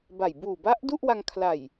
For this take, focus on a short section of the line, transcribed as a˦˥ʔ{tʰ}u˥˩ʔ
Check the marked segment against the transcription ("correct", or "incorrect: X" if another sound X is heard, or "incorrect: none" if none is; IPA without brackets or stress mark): incorrect: d